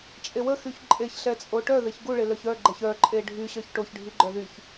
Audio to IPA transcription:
t͡ʃʼ e w ə x y ç ǃʼ e ç ɬ ɛ t͡sʼ o ʈ œ ð e ç ɡ u ɭ e l œ ç œ ɡ͡ǃ ɛ ç œ ǃʼ e ɖʱ y ɕ œ ç ʈ o ç ɖʱ i ɡ͡ǃ œ ð y ç

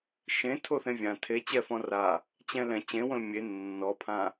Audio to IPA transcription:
ʃ ẽ tʰ o θ ẽ vʲ ã tʰ e t͡ɕ ɛ f ɔ̃ r a | t͡ɕ ɛ̃ l ɛ̃ t͡ɕ ẽ w õ l mʲ e nː ɔ pʰ ã

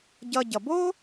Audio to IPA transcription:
ɟ ʌ˧ ɟ ʌ˨ b o˦

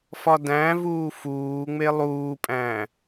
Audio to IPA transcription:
f ɒ d æ̃ v uː f uː ŋ͡m e lˠ uː pʼ æ̃

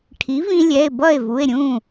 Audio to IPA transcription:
ʈʰ i˩˥ v ĩ˧ lʲ ɛ˩˧˩ e̯ b ʌ˥˩ e̯ v u˩˧˩ e̯ ɾʲ ũ˥˩

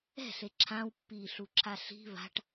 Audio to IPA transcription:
ɛ̤ ɬ e ǁʰ ã w pː iː ɬ u ǁʰ a ɬ i̤ β a̤ ʈ

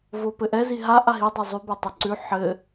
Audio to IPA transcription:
v o p ɘ ʔ ɛ z i ɦ a ʔ a ɦ i dˤ ɤ zˤ ʉ b a tˤ i ǀ ʉ ħ ɘ

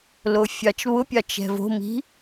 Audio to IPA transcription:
l o fʲ ɑ t͡ʃ β ʊ pʲ ɑ t͡ʃ ɛ̤ v o̤ m i̤

